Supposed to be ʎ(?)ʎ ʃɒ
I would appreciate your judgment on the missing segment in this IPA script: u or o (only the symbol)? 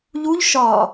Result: u